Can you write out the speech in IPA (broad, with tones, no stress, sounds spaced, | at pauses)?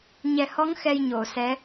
ɲ ɛ˨˩ h ɔ˧˥ ŋ x ɛ˧ j ɲ o˨˩˨ s ɛ˧˥